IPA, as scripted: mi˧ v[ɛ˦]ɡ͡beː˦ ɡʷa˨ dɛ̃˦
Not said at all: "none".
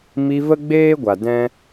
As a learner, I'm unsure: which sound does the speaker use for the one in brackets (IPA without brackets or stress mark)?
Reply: ə˦